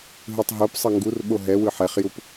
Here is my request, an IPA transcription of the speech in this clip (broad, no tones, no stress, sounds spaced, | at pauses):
ɦ ɯ tˤ ɦ o p sˤ ʌ ŋ ɡ u r ɓ o ɦ ɛ w ɯ ħ ɛ χ j u p